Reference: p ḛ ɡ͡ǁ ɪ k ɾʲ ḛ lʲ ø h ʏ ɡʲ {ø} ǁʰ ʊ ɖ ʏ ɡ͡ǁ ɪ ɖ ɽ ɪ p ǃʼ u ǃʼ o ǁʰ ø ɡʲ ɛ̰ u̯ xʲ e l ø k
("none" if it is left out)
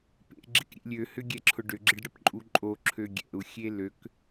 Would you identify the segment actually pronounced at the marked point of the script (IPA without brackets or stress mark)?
ɛ